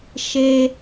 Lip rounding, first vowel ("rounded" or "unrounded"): unrounded